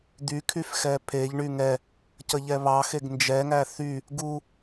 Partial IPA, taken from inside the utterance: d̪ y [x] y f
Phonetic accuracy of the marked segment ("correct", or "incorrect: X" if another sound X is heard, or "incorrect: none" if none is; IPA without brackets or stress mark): incorrect: kʰ